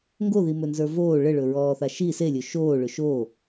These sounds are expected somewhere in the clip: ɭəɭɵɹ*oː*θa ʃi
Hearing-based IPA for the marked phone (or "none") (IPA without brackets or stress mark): ɔː